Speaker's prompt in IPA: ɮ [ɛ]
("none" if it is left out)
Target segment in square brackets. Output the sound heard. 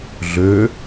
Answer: ø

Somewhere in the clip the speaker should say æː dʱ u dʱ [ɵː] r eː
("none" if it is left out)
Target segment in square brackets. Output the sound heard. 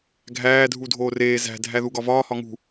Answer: oː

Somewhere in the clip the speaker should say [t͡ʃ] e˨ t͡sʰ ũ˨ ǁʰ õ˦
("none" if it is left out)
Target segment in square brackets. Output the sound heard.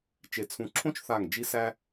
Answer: t͡ʃ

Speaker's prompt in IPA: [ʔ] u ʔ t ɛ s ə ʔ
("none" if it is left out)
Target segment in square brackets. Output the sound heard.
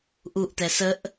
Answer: ʔ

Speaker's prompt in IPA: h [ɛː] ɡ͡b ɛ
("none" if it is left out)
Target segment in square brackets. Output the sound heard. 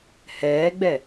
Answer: ɛː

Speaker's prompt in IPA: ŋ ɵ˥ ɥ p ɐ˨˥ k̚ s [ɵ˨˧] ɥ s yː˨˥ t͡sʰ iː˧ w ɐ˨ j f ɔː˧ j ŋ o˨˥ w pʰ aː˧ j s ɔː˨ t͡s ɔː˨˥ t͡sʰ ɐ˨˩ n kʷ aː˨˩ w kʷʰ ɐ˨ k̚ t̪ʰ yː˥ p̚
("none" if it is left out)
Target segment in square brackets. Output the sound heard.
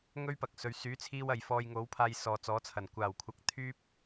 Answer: ɵ˨˧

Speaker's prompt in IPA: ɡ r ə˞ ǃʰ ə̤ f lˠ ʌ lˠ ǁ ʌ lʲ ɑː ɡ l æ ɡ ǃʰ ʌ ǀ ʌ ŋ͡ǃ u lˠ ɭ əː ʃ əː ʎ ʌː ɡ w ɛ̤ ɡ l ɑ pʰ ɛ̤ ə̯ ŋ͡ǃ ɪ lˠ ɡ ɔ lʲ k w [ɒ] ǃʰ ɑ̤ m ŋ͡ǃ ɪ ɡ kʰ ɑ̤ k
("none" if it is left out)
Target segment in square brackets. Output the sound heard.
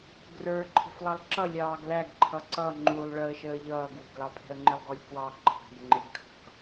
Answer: ɑ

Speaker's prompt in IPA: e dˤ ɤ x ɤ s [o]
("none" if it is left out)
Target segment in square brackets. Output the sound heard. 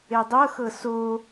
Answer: o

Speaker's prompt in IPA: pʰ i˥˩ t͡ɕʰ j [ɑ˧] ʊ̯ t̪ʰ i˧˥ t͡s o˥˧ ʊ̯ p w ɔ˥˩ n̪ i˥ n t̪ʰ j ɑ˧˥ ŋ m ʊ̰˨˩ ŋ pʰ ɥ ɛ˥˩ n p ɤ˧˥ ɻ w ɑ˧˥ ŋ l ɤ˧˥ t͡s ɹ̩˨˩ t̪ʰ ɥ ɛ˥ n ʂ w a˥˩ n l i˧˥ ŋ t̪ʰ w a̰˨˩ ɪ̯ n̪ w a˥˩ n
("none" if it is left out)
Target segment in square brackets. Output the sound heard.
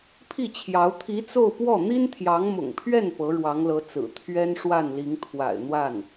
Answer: ɑ˧˥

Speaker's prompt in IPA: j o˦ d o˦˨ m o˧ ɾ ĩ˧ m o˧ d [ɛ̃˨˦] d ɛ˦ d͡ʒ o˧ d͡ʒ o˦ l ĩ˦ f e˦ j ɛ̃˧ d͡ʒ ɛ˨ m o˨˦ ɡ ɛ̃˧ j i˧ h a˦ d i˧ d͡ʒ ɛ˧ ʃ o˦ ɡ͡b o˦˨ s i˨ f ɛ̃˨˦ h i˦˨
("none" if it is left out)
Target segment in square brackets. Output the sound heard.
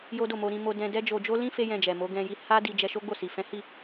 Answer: ɛ̃˧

